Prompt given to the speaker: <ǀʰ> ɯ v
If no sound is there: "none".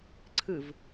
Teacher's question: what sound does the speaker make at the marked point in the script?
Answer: ǀʰ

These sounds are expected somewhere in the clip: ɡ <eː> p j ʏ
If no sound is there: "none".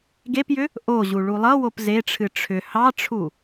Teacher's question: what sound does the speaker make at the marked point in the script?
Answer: e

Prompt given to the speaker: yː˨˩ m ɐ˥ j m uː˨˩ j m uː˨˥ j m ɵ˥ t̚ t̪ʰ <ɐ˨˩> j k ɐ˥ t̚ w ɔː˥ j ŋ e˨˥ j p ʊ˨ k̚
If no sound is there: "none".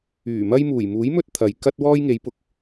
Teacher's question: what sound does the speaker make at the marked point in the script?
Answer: ɐ˨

